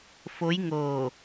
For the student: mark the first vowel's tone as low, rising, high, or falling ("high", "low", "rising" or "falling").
rising